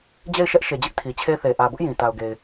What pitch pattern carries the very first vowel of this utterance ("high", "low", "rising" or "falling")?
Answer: falling